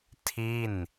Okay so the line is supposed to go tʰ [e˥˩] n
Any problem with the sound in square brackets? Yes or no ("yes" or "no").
yes